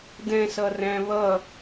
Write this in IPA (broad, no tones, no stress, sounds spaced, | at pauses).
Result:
d ɛ̃ s ʌ r æ̃ β ʌ